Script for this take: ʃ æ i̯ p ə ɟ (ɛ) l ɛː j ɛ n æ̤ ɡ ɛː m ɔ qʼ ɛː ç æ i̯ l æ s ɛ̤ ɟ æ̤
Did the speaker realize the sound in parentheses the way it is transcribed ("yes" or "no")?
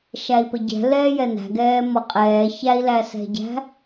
no